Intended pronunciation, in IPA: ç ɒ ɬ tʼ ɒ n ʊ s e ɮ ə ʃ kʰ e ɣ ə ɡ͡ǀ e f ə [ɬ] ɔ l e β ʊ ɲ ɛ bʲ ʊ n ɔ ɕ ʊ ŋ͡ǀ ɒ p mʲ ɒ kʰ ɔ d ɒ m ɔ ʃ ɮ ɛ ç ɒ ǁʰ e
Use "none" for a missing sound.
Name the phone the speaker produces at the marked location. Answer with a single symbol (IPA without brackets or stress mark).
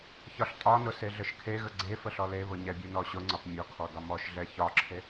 ɬ